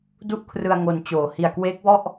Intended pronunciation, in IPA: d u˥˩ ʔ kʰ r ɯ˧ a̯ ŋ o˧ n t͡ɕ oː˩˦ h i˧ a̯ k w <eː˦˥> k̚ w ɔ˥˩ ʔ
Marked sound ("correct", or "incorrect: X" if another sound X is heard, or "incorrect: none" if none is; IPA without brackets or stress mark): correct